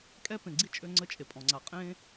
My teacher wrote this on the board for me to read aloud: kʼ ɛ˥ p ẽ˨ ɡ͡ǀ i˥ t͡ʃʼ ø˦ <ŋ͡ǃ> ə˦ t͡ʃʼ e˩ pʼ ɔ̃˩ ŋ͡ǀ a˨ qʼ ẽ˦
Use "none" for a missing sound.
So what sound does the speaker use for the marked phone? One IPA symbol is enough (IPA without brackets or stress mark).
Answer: ŋ͡ǀ